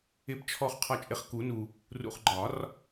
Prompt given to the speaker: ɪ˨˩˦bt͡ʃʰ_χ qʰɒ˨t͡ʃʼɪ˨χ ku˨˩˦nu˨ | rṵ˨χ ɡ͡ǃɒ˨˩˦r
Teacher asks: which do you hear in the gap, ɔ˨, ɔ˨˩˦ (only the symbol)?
ɔ˨